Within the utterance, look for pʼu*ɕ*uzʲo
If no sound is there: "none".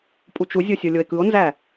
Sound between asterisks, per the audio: t͡ʃ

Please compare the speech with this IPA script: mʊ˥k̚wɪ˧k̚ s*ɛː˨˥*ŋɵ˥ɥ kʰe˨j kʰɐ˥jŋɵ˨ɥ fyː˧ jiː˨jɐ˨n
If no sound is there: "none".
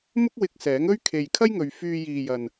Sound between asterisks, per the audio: ɛː˨˥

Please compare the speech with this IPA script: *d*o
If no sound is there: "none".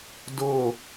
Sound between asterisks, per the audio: d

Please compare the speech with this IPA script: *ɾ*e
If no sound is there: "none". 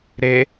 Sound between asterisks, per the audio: ɾ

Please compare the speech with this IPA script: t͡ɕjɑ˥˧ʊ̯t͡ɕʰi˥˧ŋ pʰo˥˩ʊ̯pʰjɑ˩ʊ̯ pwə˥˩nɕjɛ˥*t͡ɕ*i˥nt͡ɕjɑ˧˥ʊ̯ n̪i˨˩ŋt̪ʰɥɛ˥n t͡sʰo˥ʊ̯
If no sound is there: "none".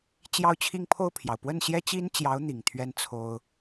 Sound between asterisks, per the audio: t͡ɕ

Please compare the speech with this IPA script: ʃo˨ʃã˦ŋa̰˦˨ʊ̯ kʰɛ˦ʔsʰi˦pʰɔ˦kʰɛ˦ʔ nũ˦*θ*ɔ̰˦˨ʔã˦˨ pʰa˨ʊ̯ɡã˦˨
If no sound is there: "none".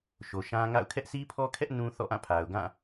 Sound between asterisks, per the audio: θ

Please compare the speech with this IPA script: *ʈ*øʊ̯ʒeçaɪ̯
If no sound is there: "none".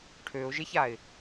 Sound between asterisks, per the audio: ʈʰ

